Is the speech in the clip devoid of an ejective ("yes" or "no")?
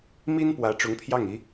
yes